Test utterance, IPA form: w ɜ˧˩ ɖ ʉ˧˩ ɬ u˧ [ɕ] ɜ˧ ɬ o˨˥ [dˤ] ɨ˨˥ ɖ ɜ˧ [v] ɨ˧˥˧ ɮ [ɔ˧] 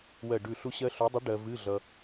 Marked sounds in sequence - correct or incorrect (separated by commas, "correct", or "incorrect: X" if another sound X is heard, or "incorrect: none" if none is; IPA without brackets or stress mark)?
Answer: correct, correct, correct, incorrect: ʌ˧